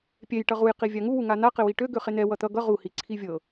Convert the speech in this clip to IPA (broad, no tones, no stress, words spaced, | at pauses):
pʲɛj ʈʌʁuj qivʲaŋuwu ŋan̪aqɪwi ʈøɡø χen̪ɛ wʌt̪ʌ ɡʌ ʁu hiǀʰivʲɤ